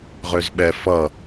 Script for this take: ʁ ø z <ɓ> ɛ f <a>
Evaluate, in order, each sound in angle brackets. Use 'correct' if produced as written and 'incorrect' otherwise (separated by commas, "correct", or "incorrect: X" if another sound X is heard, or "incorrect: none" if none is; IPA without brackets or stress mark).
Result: correct, incorrect: ʌ